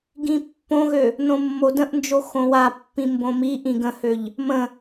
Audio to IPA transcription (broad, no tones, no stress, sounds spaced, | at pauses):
ɡ ĩ pː õ ɣ ø | n õ mː o d ə̃ ʔ n d͡ʒ o x õ w a pː ĩ m b õ m i ʔ ĩ ɡ ə̃ h ø ʎ | m ə̃